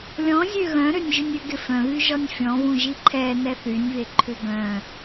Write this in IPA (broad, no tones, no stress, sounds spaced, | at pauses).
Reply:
lʲ ɔ̃ zʲ ø ɣ œ̃ ɾ ø nʲ ʒ ʏ nʲ ʏ ɡ ɪ f œ̃ β y ʒ ɔ nʲ fʲ ɔ̃ β ũ ʒ i ǃʰ ɛ n ɛ θ y nʲ β e ǃʰ ʏ ɡ œ̃